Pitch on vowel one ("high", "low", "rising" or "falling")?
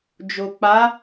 low